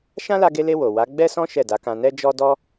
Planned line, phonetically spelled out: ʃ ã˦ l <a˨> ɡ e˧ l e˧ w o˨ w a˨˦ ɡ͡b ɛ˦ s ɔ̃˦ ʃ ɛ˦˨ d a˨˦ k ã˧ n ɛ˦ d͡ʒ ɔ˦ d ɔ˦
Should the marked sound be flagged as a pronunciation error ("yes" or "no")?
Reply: yes